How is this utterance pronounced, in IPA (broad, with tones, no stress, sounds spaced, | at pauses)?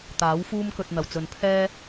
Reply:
t̪ aː˨˥ w f uː˥ m k ɵ˧ t̚ n̪ ɐ˨ w t͡s ɵ˨ n pʰ ɛː˥